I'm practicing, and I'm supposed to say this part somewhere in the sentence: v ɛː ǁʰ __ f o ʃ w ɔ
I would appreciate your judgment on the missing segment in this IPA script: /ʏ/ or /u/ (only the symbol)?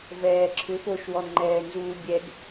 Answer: ʏ